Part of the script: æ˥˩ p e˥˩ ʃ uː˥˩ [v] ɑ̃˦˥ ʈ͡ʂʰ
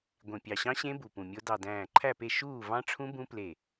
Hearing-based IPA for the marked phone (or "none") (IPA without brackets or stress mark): v